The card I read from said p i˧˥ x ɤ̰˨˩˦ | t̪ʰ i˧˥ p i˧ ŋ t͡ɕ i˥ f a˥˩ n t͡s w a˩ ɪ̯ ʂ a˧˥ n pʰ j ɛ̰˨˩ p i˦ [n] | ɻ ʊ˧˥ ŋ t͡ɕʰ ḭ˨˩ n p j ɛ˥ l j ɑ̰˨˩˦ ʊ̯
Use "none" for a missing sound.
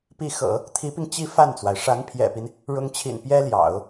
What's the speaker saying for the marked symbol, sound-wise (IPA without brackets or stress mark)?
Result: n